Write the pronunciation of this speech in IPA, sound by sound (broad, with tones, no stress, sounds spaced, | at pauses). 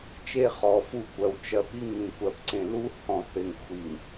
t͡ʃ e˦ χ ɔ˨ f u˦ kʷ ɜ˨ w t͡ʃ ɜ˨ p i˦ ŋ ĩ˨ kʷ ɜ˨ p ǀ ẽ˨ l u˦ h ɔ̃˨ θ ɪ˨ ŋ xʷ i˨ ŋ